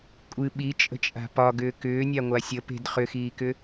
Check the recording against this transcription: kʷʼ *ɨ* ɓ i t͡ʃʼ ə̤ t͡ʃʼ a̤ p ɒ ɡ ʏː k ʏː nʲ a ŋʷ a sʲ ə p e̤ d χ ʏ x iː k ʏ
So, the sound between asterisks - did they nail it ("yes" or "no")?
yes